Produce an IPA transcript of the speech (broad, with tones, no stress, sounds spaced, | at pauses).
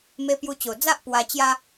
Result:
m e˧ p j u˧ t͡ɕ o˨˩ d͡z a˦ ʔ p w a˧ t͡ɕ j a˧